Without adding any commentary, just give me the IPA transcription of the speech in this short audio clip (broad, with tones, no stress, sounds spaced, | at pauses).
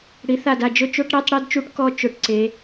ɽ i˩˧ θ a˧˩ d a˧˩ d͡ʒ ʊ˧ t͡ʃ o˧˥˧ ʈ ɾ i˧˥˧ tˤ ɽ i˥˧ d t͡ʃ u˧˥˧ ʈ k ɔ˧ t͡ʃ ʊ˩˧ ʈ ǀ e˩˧